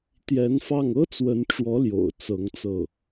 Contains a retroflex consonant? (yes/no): yes